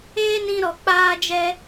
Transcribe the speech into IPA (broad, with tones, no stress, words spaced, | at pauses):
eː˦nĩ˧ɾɔ˨ k͡paː˦d͡ʒɛ˦